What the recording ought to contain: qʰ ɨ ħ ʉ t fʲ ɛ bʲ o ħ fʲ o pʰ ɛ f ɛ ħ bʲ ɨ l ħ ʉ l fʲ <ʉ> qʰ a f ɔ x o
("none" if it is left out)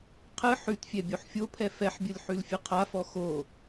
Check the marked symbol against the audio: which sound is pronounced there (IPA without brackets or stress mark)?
ɨ